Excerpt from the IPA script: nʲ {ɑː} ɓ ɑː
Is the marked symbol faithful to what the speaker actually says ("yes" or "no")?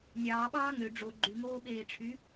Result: yes